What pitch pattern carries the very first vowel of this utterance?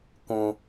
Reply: high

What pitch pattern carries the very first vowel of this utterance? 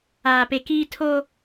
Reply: low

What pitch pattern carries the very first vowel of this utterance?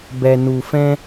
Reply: low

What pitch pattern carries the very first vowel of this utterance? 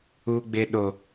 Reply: high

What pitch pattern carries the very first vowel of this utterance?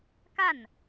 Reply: falling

